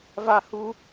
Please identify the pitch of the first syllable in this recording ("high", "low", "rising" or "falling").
falling